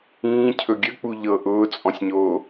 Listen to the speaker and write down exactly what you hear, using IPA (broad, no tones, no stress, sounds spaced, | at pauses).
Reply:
ĩː cʰ ɵ ɡʲ ə k͡p u ʎ ɤ ʔ ʊː t͡sʼ ɔ̃ sʲ ɲ oː